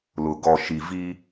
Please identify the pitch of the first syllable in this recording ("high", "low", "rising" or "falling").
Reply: low